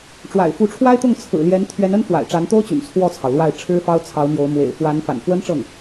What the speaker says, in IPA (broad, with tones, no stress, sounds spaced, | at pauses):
ʈ͡ʂ w a̰˨˩ ɪ̯ f u˧˥ ʈ͡ʂʰ w a˥ ɪ̯ t̪ ʊ˥˩ ŋ t͡sʰ ɹ̩˨˩ l j ɛ˧˥ n t̪ʰ ɥ ɛ˧˥ n ə˥ n f w a̰˨˩ ɪ̯ ʈ͡ʂ a˧˥ n t̪ o˥ ʊ̯ t͡ɕ y̰˨˩ n t͡sʰ w ɔ˥˩ t͡sʰ ɑ˩ ʊ̯ l w a˥˩ ɪ̯ ʈ͡ʂʰ ɻ̩˥ f ɑ˥ ʊ̯ t͡sʰ ɑ˧˥ ʊ̯ m j o˧˥ ʊ̯ m w ḛ˨˩ ɪ̯ f w a˧˥ n f a̰˨˩ n f w ə˥ n ʈ͡ʂ ɤ˥˩ ŋ